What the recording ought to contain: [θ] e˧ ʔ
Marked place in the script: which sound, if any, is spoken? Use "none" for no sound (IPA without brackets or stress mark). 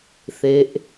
θ